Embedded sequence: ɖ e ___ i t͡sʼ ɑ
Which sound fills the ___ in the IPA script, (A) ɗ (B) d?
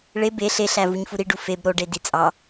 B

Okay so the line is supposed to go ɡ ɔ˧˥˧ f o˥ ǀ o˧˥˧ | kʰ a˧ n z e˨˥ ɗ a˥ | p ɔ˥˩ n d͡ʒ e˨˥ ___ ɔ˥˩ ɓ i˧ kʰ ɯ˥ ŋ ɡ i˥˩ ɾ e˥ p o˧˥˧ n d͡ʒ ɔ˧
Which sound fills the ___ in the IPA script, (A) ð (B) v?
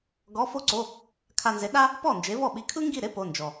B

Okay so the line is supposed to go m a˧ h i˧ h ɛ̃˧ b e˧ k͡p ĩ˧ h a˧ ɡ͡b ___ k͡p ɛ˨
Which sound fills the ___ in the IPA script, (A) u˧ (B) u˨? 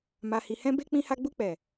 A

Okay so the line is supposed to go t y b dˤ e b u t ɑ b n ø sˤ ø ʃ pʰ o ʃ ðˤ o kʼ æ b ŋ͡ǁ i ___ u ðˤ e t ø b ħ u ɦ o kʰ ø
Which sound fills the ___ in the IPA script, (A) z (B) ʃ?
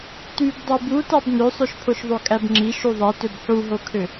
B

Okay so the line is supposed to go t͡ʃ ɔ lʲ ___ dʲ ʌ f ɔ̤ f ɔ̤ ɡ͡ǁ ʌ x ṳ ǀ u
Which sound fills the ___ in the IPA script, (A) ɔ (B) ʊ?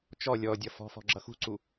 A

